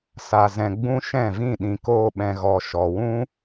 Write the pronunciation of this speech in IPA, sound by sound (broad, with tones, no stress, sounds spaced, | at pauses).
s a˨ z ɛ̃˨ ɡ͡b ũ˧ ʃ ɛ̃˦˨ v ĩ˦˨ ɗ ĩ˨ k oː˧ ɓ ɛ̃˨ ɣ ɔ˨ ʃ ɔ˨ w ũ˦